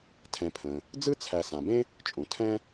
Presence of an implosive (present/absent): absent